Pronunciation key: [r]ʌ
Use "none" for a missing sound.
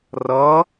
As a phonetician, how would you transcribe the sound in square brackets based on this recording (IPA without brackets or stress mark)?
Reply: r